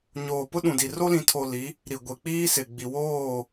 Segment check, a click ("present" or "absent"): absent